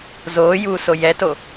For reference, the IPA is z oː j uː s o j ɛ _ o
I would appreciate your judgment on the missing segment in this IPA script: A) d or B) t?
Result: B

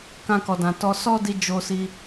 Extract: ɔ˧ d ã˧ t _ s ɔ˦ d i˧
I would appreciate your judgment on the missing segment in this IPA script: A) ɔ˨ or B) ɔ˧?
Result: B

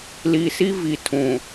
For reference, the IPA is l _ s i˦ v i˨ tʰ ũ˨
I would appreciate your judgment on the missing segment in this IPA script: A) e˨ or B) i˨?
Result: B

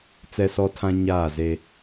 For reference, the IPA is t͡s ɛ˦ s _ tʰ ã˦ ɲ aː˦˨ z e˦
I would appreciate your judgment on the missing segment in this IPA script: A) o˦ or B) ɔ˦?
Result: B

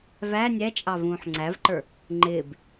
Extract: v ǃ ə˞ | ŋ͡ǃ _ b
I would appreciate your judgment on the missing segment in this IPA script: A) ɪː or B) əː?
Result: A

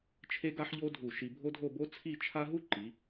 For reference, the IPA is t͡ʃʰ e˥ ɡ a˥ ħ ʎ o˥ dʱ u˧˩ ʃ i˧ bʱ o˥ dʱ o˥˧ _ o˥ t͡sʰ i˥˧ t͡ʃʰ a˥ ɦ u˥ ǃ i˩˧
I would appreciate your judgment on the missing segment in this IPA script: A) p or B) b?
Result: B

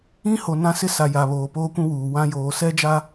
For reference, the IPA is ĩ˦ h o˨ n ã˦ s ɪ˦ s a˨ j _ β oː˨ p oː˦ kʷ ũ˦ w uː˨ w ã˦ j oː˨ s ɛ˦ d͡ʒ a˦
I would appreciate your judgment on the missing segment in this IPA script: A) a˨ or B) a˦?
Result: A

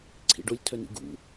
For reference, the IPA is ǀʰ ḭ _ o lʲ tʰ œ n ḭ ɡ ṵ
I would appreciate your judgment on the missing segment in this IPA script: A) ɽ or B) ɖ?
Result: B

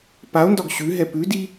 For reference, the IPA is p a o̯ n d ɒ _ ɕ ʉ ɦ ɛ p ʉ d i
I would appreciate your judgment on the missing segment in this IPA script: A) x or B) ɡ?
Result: B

